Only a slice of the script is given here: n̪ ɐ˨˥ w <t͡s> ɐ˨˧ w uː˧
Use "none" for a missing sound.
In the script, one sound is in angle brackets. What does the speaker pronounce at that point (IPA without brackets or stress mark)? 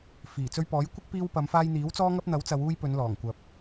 t͡s